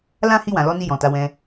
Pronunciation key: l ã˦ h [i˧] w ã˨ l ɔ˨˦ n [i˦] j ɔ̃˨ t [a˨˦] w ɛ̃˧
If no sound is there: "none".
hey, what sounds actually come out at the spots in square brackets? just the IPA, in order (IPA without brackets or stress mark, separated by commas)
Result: i˧, i˧, a˨˦